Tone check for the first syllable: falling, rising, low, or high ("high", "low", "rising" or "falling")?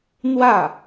falling